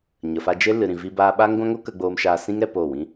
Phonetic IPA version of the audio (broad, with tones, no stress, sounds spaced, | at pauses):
ɲ ə˨ f a˧ d͡ʒ e˦ l ɨ˨ ɾ ĩ˨ v i˧ b aː˧ ɓ aː˦ ŋ ɡʷ ã˦ ŋ o˦ k ə˧ ɡ͡b oː˧ m ʃ aː˧ s ĩ˦ ŋ ɾ ɛ˦ p o˦˨ w ĩ˦